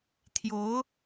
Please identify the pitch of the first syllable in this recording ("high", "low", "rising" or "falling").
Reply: rising